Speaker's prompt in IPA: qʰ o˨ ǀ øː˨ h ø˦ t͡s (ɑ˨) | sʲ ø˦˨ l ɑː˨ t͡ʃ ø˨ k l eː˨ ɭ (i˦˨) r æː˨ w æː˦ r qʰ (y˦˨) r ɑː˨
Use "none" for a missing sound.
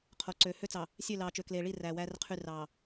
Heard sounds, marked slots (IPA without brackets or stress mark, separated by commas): ɑ˨, i˦˨, y˦˨